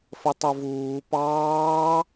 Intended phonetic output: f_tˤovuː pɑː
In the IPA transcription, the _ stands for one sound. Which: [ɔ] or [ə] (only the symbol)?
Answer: ə